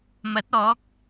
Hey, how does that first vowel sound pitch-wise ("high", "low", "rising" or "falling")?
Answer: rising